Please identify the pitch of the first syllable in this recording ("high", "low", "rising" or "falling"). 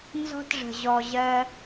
high